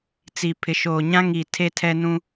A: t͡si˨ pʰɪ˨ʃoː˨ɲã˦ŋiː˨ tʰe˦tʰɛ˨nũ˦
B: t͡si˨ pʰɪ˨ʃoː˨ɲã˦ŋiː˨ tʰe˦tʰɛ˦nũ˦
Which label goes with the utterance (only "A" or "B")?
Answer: B